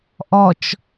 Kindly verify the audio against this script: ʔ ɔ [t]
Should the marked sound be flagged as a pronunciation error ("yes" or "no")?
yes